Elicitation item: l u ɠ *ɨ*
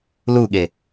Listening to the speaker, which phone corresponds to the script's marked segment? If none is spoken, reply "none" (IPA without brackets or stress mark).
e